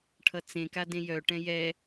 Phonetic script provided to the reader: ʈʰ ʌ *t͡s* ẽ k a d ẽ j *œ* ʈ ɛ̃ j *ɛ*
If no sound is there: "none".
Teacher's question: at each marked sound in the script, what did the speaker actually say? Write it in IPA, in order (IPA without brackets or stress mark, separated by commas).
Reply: t͡s, œ, ɛ